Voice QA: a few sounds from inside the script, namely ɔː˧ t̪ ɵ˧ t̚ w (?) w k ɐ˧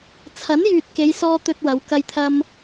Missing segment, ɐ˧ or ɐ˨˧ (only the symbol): ɐ˨˧